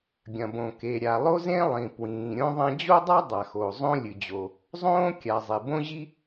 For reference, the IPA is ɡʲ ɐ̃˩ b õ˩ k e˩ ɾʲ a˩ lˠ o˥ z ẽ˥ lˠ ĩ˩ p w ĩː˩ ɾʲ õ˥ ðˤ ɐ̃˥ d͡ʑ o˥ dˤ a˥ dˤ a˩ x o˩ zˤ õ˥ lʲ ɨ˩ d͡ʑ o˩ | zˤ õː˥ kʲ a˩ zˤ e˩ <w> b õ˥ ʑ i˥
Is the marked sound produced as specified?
no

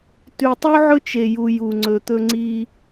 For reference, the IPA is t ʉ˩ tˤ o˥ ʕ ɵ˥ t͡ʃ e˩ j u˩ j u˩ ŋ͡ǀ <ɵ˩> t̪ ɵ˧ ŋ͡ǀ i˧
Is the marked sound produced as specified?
yes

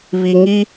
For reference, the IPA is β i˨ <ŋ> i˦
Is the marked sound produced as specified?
yes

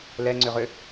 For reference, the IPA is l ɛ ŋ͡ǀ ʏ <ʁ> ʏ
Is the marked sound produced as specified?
yes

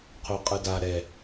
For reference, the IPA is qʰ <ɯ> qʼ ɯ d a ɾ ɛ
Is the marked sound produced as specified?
no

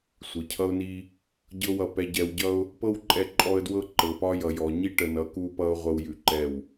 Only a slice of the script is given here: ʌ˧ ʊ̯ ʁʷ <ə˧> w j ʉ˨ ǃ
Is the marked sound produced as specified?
yes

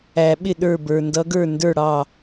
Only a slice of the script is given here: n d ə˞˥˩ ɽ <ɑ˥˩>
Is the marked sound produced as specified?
yes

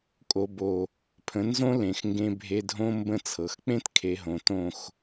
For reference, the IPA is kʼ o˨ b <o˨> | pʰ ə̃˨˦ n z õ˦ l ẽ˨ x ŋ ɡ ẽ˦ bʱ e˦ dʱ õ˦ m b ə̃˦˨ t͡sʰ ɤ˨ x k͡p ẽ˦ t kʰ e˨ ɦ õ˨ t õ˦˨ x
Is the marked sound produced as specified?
yes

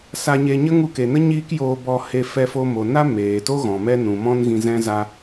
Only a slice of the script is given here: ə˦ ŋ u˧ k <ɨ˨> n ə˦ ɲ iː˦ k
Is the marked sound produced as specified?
no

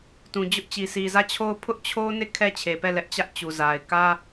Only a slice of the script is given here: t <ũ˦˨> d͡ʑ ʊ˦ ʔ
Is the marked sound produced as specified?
no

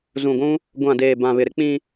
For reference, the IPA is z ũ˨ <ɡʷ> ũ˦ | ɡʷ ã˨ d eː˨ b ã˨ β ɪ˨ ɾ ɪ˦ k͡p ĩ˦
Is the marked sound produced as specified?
yes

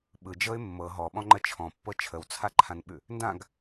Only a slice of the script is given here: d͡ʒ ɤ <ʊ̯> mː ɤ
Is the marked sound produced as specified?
no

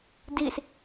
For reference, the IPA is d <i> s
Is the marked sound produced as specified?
yes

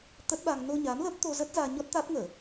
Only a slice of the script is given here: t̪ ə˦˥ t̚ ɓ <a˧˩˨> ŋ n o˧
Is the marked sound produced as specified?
no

